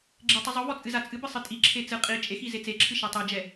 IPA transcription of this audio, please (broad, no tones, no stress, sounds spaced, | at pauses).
ɡ͡ǁ e tˤ ɨ zˤ u v ɔ t͡sʼ ɨ z a t͡sʼ ɨ b ɨ sˤ ɨ tʼ i ǁʰ e t͡s ɨ qʼ i t͡ʃʼ e x i z e t͡s e ǁʰ ɨ ʃ a tˤ e d͡ʒ ɛ